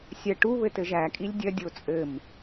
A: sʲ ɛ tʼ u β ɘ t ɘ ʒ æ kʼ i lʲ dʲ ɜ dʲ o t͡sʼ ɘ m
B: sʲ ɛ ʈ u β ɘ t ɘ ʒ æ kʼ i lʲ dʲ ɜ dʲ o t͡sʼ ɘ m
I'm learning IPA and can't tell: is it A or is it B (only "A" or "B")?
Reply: B